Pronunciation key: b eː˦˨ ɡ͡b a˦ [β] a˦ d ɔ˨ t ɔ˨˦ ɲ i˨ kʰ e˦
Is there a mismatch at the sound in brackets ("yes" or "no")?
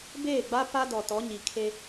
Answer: yes